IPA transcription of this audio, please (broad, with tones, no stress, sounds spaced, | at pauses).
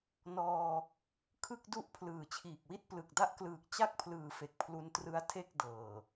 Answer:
n ɔː˧ | kʰ ɯ˥˩ k̚ d u˥˩ ʔ pʰ l ɯː˨˩ t͡ɕʰ iː˨˩ k̚ w i˥˩ t̚ p l ɯ˨˩ k̚ d a˦˥ ʔ k l ɯː˨˩ k̚ t͡ɕ a˥˩ k̚ pʰ l ɯː˨˩ f e˨˩ k̚ pʰ l u˧ n t r ɯ˦˥ a̯ tʰ e˥˩ k̚ d ɤː˨˩